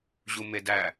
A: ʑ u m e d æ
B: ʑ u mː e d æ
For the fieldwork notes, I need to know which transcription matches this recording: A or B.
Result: A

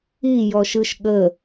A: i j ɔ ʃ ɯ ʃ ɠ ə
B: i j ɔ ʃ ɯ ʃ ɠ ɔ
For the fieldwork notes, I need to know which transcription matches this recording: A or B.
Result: A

